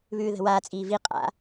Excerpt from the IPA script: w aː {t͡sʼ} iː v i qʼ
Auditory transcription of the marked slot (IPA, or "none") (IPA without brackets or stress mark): t͡sʼ